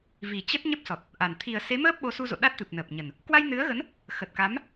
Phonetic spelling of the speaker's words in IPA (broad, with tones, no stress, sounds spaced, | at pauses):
v i˨˩ t͡ɕ ə˦˥ t̚ ɲ ə˦˥ p̚ s ɔ˨˩ t̚ | ʔ a˨˩ n t̪ʰ i˨˩ ə̯ s e˨˦ m əː˦˥ p̚ ɓ o˨˦ s u˧ z o̰˧˨ ɗ a˦˥ t̚ t̪ ɨ˨˩ p̚ n əː˨˩ p̚ ɲ ə˨˩ n | k w a˧ j n ɨ˨˦ ə̯ ɣ ə˨˦ n | x ə˨˩ t̚ k a˨˦ m